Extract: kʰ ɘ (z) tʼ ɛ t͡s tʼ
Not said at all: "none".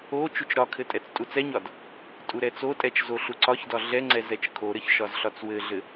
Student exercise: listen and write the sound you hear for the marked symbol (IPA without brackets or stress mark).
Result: none